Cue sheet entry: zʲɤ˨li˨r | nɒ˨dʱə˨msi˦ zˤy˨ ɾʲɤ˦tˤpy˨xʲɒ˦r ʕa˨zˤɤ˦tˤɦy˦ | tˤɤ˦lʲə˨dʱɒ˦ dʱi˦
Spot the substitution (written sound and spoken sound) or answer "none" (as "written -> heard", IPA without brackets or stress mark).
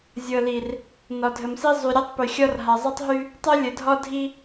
ʕ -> ɦ